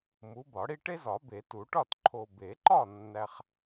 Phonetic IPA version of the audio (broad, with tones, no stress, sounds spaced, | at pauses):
m u˨˦ b ɒ˨˩˦ ɽ i˦ ʈ e˦ z ɒ˨˩˦ b e˨˩˦ t u˨˩˦ ʈ ɒ˥˨ t ǃʰ o˨ b e˨˩˦ ǃ ɒ˥˨ nː æ˦ χ